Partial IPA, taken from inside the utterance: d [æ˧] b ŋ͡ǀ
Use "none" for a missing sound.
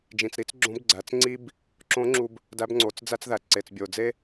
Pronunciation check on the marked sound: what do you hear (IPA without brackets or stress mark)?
æ˧˥